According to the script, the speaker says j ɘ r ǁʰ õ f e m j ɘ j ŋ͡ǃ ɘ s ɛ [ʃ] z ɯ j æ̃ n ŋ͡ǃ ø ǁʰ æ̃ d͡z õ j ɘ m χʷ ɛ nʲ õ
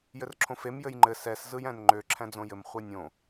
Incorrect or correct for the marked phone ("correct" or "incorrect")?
incorrect